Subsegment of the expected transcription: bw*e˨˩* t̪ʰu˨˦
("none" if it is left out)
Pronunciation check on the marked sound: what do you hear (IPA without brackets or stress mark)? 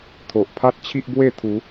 e˥˧